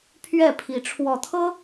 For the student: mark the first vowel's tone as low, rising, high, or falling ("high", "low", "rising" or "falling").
falling